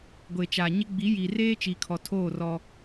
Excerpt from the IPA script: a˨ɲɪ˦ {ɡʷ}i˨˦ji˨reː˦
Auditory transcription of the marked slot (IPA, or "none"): ɡ͡b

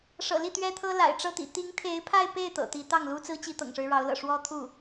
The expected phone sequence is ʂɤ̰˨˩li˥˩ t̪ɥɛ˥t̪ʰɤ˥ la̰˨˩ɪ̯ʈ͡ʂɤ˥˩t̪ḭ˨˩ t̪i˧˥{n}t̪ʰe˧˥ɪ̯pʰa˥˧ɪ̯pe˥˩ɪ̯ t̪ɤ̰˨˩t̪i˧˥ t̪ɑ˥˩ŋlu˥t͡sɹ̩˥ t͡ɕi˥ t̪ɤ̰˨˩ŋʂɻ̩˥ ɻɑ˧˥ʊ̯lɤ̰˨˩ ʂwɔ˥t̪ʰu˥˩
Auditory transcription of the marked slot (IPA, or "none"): ŋ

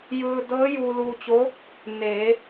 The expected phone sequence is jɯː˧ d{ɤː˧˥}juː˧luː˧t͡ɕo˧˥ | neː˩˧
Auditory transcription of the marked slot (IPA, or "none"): ɤː˧˥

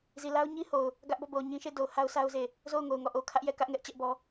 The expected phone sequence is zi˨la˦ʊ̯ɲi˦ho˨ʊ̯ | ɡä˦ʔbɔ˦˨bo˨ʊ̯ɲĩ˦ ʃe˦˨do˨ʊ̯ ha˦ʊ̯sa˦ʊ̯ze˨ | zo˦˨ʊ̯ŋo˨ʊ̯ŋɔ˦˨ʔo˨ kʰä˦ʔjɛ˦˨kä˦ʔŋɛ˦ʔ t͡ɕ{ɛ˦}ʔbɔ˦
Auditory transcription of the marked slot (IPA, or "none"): ɛ˦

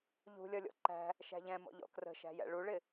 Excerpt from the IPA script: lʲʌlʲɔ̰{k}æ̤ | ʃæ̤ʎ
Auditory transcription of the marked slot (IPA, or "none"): ǃ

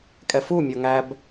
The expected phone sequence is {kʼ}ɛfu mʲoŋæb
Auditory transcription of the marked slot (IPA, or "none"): kʼ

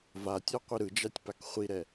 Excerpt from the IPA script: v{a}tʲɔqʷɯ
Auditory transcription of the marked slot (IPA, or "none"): a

